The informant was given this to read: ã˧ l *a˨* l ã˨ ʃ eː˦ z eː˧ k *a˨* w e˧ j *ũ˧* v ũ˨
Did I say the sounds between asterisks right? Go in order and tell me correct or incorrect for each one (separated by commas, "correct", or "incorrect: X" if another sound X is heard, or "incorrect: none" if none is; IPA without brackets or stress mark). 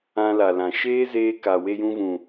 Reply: correct, correct, correct